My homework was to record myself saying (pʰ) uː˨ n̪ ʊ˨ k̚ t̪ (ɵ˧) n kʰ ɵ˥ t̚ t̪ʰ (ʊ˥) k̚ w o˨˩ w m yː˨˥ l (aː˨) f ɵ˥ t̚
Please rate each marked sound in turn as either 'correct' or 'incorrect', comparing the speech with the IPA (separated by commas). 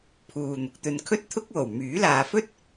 correct, correct, correct, correct